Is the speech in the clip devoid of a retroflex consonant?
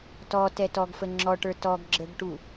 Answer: no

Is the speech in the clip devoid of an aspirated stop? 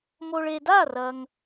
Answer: yes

